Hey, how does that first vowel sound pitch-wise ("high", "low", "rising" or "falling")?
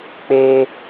high